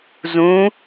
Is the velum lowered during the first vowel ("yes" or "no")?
yes